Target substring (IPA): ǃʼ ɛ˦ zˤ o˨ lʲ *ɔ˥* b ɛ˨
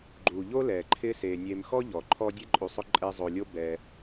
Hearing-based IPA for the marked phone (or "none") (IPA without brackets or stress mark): o˥